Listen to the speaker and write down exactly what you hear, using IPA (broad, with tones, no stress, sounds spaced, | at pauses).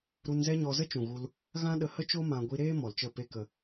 ɾ u˧ n z ɛ˦ ɲ ɔ˧ z ə˦ t͡ʃ ũ˨ ɣ u˧ l | ɣ ã˦ ɗ ə˧ h ə˦ t͡ʃ o˦ m ã˧ ɡʷ i˧ ɾ eː˦ m ɔ˨ l t͡ʃ ə˦˨ p e˦ k ə˧